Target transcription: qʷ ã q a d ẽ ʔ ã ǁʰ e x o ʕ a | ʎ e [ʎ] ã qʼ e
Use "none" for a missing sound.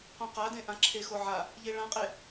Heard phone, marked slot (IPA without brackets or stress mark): ɭ